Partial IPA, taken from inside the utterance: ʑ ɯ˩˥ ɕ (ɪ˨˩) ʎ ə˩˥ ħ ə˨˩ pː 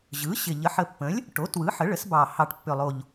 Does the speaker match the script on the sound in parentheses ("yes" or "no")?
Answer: yes